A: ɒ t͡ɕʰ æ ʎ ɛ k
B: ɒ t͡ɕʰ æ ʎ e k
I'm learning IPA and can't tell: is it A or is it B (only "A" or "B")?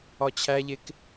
B